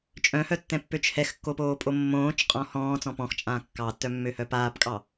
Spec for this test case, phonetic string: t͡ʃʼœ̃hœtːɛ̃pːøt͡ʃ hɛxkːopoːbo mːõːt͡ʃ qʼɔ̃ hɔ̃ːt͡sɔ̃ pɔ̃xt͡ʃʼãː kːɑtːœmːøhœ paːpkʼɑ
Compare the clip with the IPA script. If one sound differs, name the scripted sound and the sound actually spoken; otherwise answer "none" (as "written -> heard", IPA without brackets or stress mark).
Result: b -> pʼ